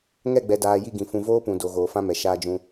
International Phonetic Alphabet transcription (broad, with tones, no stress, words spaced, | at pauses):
ŋɛ˦˨ɡ͡bɛ˨daː˨ ji˦˨ɡĩ˨ fũ˨ voː˦pũ˨ do˨ ɣoː˨fã˦mɛ˨ ʃaː˦d͡ʒũ˦